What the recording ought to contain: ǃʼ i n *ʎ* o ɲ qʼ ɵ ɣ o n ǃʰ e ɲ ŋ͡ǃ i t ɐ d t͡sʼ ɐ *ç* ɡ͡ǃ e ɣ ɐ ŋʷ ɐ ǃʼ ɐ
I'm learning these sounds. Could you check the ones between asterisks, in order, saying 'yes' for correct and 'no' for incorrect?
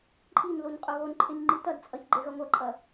no, yes

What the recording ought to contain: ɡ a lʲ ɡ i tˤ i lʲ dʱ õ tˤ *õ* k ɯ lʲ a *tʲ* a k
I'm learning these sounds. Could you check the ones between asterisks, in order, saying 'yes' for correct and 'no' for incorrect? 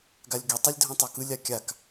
no, no

